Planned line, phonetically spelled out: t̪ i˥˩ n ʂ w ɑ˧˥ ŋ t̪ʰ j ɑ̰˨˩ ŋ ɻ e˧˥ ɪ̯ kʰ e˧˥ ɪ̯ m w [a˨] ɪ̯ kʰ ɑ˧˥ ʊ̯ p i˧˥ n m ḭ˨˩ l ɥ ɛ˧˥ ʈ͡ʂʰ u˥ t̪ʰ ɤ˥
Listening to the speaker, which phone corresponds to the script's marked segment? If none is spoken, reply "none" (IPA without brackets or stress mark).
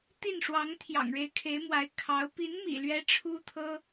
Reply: a˧˥